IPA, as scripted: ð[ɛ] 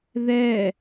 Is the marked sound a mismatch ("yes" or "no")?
no